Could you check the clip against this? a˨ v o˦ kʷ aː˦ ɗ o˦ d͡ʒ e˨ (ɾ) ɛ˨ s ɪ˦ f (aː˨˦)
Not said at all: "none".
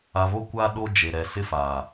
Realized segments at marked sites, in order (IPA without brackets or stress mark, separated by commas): ɾ, aː˨